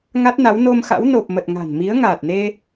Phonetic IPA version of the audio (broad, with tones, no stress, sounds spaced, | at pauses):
ŋ a˦˥ t̚ n a˨˦ w n o˧ m x a̰˧˥ w n o˨˩ p̚ m ə˨˩ t̚ ŋ a̤˨˩ n m i˨˦ ə̯ ŋ aː˨˩ t̚ n e˧